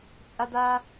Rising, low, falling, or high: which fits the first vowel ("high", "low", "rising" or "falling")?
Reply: high